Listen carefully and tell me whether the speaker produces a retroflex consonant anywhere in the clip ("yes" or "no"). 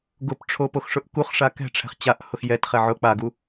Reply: yes